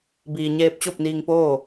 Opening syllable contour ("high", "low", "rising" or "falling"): low